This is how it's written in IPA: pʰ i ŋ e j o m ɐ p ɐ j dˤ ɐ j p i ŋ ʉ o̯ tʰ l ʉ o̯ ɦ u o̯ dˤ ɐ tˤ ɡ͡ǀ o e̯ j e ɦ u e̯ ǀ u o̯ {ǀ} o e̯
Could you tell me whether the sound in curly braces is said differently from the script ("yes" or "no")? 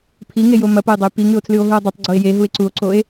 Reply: no